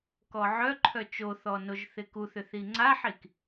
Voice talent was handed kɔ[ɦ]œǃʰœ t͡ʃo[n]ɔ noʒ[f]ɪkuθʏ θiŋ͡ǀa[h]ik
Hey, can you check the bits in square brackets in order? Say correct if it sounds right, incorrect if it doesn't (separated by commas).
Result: incorrect, incorrect, incorrect, incorrect